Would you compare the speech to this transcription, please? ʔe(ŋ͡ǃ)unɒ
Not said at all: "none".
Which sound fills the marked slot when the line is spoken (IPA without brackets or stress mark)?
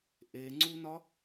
ŋ͡ǀ